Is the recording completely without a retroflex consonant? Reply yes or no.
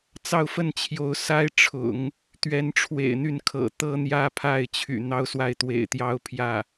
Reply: no